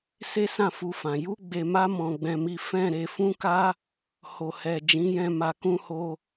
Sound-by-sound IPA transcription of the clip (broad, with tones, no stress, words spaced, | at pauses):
se˦sã˦˨fu˧fã˨ ju˧ɡ͡be˨ma˧ mɔ̃˧ɡ͡bɛ̃˧mi˦ fɛ̃˦˨ɾe˧ fũ˦ka˦ | ho˨hɛ˨ d͡ʒĩ˨˦jɛ̃˧ ma˨kũ˧ho˧